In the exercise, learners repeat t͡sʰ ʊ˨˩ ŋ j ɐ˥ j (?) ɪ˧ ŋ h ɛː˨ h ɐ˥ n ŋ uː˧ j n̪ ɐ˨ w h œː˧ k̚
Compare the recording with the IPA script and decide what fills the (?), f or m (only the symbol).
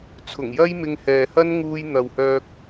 m